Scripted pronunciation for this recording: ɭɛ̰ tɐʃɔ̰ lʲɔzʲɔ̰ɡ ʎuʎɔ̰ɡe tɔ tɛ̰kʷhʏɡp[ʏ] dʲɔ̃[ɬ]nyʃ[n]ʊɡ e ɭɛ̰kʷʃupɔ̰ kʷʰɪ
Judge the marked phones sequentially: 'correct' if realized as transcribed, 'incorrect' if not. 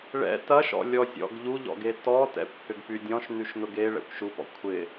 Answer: incorrect, incorrect, correct

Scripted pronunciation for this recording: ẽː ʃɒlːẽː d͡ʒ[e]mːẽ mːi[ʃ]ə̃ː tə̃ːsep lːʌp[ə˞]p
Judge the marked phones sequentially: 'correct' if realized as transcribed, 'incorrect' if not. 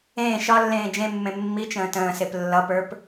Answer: incorrect, incorrect, correct

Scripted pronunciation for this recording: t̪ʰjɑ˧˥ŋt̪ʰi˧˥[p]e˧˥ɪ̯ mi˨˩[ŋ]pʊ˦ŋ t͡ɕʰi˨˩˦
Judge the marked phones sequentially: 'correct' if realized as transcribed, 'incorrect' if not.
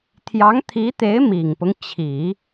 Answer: incorrect, correct

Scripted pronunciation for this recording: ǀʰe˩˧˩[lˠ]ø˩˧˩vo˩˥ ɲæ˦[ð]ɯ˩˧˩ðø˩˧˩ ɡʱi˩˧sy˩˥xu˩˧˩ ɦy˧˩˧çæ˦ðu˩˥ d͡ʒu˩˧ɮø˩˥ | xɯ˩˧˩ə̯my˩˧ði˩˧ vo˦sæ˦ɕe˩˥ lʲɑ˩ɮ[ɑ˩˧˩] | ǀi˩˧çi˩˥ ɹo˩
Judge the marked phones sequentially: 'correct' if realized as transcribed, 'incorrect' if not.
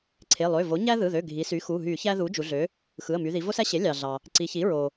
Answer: correct, correct, incorrect

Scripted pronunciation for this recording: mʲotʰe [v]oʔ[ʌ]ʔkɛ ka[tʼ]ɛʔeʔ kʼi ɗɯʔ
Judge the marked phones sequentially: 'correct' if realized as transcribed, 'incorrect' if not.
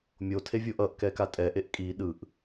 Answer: incorrect, correct, correct

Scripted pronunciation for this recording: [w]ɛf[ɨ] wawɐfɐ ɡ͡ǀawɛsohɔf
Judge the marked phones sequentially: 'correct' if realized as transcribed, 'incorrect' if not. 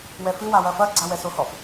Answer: correct, correct

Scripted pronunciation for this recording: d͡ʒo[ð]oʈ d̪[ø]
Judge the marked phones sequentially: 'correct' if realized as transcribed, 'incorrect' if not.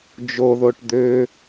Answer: correct, correct

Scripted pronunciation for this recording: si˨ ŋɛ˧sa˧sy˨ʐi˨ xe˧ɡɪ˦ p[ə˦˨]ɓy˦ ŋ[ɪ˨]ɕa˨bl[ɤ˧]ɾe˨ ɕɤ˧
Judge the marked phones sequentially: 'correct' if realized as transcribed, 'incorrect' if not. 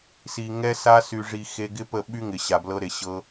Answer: correct, correct, correct

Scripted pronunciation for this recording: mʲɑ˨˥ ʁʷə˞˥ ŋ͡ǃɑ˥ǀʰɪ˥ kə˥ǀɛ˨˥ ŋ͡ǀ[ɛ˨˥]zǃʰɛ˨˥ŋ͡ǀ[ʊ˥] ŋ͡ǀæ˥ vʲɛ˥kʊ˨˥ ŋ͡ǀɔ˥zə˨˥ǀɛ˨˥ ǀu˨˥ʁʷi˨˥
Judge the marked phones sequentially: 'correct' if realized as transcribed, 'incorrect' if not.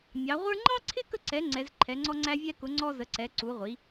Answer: correct, incorrect

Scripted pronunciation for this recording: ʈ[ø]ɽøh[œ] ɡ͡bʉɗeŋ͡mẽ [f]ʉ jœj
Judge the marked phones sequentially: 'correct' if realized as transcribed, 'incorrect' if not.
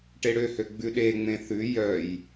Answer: incorrect, incorrect, incorrect

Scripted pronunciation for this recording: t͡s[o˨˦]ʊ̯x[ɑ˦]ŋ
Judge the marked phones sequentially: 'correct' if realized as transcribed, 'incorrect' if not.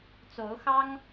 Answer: correct, correct

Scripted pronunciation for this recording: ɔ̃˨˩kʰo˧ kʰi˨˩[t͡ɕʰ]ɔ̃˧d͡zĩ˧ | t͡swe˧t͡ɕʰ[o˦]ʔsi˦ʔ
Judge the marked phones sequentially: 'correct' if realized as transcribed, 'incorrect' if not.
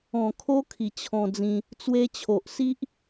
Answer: correct, incorrect

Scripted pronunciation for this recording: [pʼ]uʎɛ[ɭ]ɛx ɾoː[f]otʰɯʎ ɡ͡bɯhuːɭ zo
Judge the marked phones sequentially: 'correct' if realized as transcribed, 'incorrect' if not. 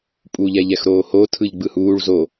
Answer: correct, incorrect, incorrect

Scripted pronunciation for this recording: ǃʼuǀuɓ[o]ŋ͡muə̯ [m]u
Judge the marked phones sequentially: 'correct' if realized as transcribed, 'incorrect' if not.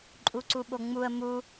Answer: correct, correct

